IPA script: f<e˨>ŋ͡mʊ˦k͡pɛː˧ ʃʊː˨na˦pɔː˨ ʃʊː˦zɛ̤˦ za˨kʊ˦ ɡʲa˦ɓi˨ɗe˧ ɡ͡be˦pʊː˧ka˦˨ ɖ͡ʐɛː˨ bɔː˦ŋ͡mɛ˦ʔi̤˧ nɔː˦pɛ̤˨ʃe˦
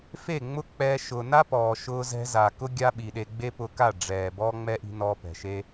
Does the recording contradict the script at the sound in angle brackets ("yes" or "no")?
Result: yes